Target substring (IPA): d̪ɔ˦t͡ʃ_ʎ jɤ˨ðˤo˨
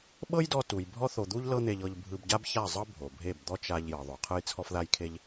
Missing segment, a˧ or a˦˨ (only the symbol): a˧